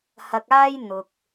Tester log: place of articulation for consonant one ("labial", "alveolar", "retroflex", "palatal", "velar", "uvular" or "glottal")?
glottal